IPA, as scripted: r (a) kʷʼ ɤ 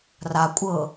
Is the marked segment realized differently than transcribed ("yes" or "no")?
no